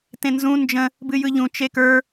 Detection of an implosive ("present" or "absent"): absent